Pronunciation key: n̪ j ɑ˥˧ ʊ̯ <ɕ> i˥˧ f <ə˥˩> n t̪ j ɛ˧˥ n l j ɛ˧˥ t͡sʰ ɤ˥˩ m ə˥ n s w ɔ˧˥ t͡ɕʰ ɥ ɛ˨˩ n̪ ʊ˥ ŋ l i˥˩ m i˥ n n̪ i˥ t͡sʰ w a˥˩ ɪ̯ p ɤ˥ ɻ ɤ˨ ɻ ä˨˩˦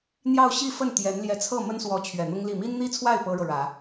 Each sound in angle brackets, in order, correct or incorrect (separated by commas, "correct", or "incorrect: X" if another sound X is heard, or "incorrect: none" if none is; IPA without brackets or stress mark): correct, correct